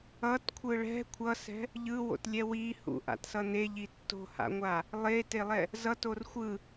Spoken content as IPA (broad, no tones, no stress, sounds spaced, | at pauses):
ʌ t kʷʰ ɯ ɭ ɛ̤ kʷʰ ʌ s ɛ̤ | ʎ ɯ w o̰ t lʲ ɛ w i h ṵ ʔ a̰ t s ʌ n e ʎ i tː o̤ h a̰ ŋʷ a | lˠ e t e lˠ ɛ | z ʌ t o r xʷ ɯ